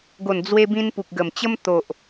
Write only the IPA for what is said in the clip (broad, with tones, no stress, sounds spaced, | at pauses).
ɡ o˨˩ n d͡z w e˧ b ĩ˧ n p u˨ k̚ ɡ ə˨˩ m t͡ɕ ə˦ m t̪ o˨ ʔ